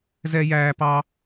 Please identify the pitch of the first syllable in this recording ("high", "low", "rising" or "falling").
high